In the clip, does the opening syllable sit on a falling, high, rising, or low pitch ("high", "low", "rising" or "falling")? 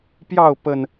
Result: falling